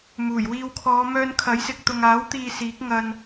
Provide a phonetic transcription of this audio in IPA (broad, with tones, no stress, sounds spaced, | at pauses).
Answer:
m uː˨˩ j w iː˧ w kʰ ɔː˨˧ m œː˧ n kʰ ɐ˨˥ j s ɪ˨ k̚ t̪ ʊ˨ ŋ aː˨˥ w t̪ iː˨ s iː˨˥ k̚ ŋ ɐ˧ n